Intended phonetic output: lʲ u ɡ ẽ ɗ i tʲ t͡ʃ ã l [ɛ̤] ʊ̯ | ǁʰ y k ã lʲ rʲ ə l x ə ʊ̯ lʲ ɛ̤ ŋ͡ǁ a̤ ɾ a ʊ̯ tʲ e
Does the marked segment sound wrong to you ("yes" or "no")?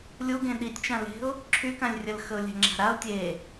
yes